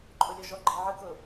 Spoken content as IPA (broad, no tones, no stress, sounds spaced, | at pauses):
ǃʼ ʊ lʲ ɔ ʒ ɔ ɡ͡ǃ i ʕ ɯ k ʊ